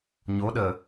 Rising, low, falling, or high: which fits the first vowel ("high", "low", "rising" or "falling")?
rising